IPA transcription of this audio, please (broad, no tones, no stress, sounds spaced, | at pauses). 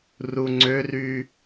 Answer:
r u ŋ͡ǀ ø r y